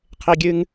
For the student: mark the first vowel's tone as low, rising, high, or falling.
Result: high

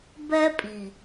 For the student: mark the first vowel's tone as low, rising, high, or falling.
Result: high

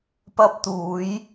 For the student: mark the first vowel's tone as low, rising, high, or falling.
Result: high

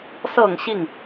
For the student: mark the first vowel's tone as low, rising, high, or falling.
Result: low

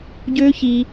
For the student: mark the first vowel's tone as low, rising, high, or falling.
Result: high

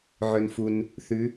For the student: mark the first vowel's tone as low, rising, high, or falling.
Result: low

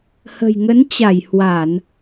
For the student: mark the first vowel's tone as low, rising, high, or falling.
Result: low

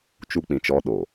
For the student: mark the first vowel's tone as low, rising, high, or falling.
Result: high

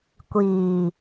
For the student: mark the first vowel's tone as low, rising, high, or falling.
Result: low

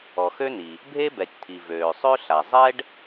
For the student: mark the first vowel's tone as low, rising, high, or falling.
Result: low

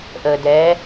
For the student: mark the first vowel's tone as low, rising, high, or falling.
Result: low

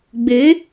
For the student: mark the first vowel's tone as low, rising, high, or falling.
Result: rising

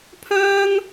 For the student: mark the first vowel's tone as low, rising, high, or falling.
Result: high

